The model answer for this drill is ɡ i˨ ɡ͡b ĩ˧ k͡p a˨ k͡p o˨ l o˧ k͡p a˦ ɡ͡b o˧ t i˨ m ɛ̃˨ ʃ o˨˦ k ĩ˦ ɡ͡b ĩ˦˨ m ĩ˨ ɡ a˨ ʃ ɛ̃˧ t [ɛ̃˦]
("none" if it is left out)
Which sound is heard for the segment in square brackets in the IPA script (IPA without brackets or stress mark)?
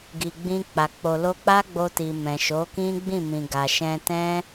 ɛ̃˦